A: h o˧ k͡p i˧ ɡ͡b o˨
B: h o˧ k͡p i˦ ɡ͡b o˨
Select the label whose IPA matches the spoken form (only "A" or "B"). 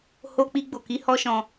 A